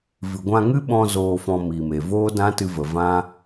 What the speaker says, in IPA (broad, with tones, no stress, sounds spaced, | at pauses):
v ɨ˨ ɡʷ ã˧ ŋ ɨ˦ ɓ ɔ̃˧ z oː˧ f ɔ̃˧ m i˨ m e˨ v oː˦ d ã˦ t ɨ˧ v ə˨ v ã˦